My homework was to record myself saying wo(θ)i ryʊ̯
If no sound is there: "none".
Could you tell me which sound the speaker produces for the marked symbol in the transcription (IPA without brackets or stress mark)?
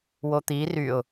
t̪